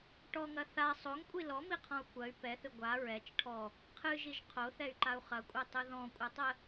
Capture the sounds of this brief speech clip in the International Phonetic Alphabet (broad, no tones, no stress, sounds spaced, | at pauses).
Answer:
ʈ ɔ ŋ ɐ θ a sˤ o ŋ kʷʼ i l ɔ m i qʰ ɔ̃ u̯ kʷ ɐ y̯ p ɛ θ ɨ ɡʷ a ɹ ɛ t͡ʃ ʈʰ ɔ | qʰ ɨ ʒ i ʒ qʰ o θ ɛ y̯ ǃ a u̯ χ ɐ kʷʼ ɛ tˤ ɯ ð ɔ̃ kʷʼ ɐ tˤ ə